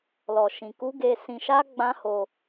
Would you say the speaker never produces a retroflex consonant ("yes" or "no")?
yes